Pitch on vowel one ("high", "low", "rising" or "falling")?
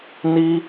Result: high